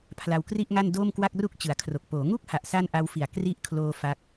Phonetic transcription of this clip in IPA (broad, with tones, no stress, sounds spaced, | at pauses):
pʰ l a˧ w k r i˥˩ ʔ ŋ a˥˩ n d oː˥˩ m k w a˥˩ k̚ r u˥˩ k̚ t͡ɕ ɯ˩˦ a̯ kʰ r o˨˩ k̚ p oː˩˦ ŋ u˥˩ k̚ h a˨˩ ʔ s a˥˩ n ʔ a˦˥ w f i˨˩ a̯ k r i˥˩ ʔ kʰ l oː˧ f a˦˥ k̚